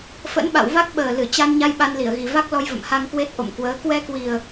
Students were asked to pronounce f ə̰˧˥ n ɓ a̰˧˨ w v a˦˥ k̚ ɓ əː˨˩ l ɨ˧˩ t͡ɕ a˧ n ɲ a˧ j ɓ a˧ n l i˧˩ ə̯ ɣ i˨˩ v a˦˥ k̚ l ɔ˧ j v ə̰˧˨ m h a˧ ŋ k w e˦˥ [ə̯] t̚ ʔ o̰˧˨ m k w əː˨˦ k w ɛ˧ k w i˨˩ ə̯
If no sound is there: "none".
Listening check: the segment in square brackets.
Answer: none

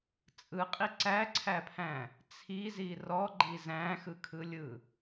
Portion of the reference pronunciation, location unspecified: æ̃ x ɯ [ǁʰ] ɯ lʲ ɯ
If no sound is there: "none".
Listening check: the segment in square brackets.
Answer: kʰ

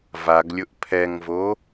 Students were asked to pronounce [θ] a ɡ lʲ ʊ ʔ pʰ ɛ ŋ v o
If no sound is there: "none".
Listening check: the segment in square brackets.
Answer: v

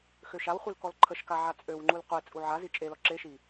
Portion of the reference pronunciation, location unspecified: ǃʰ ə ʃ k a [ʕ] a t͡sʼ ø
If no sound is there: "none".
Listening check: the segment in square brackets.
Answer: ʕ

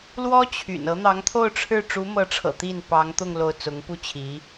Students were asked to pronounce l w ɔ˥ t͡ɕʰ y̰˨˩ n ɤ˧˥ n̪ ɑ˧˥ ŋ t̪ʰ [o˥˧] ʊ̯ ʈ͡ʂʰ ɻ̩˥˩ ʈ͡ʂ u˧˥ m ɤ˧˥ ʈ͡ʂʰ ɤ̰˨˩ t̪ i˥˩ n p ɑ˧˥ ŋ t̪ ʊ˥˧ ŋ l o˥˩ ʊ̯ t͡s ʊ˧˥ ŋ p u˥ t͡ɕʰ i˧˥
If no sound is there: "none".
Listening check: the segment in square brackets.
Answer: o˥˧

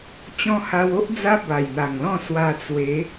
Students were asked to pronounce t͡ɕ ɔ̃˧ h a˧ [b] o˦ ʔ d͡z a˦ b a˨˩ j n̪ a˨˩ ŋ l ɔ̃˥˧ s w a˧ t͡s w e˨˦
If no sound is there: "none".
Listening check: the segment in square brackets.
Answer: w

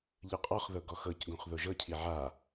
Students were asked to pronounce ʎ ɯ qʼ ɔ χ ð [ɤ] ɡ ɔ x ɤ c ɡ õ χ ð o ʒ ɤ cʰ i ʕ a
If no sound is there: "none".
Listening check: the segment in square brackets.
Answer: ɤ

